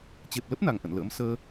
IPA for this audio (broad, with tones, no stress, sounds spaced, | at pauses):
t͡ɕ e˨˩ p̚ l ə˦˥ p̚ n a˨˩ ŋ ʔ ə̰˧˨ n l ə̰ː˧˥ m s əː˧